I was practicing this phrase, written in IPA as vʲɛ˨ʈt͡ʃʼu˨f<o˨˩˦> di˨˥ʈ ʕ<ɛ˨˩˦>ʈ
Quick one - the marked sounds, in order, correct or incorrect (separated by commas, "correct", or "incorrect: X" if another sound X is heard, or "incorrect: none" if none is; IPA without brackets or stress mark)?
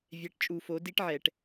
correct, correct